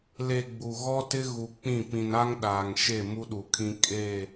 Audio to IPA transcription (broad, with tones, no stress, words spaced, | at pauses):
le˨ ɡ͡bu˨ ɣɔ˦tɪ˦ ɣu˨k͡pĩ˦˨pĩ˨n a˦ŋ ɗaː˨ŋʃe˦˨ mu˦ɗu˨kʰĩ˦ kʼe˦˨